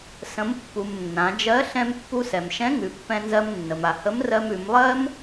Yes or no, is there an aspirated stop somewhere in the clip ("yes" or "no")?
no